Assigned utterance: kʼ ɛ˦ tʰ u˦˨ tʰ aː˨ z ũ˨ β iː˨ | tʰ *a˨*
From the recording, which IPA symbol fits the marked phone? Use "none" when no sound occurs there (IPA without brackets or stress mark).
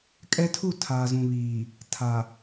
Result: a˨